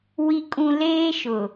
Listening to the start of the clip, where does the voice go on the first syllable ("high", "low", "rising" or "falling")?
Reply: high